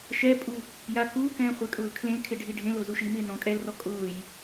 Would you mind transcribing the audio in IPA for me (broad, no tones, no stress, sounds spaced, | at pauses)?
ʃ ɛ pʼ u | j a k uː k ɛ̃ː χʷ e kʼ ʊː l kʰ l ẽ l kʰ ɪ ɖʱ i ɖʱ ẽ l o z u ʃ i m ɪː n ɔ̃ kʼ ɛ l r ɔ kʼ ʊː j